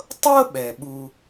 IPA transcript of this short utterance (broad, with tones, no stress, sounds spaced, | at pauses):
tˤ ɤ˥ ɓ ɛ˩ ɓ u˨